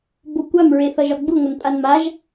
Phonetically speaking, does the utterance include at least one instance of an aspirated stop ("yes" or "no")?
no